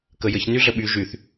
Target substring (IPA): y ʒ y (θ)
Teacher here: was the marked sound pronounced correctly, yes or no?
yes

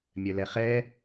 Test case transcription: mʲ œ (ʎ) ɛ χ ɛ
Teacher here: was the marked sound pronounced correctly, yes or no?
no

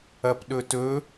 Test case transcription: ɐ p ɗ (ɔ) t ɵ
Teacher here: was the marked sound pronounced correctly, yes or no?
no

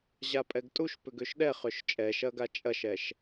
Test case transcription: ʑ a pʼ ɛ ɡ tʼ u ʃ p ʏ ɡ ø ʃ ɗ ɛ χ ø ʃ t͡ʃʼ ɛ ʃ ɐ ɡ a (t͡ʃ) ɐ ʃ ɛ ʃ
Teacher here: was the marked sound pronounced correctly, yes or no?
no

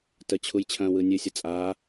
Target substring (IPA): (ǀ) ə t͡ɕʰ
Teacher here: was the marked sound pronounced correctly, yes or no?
no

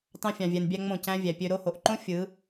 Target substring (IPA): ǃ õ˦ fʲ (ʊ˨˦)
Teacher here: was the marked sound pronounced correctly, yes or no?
no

